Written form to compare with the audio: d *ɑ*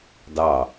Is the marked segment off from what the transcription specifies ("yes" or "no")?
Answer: no